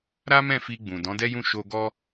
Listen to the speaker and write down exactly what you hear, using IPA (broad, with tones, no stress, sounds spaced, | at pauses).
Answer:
ɾ a˦ m ɛ̃˦˨ f i˧ ɡ͡b ũ˨ d ɔ̃˨˦ d ɛ˦ j ũ˦˨ ʃ o˧ ɡ ɔ˦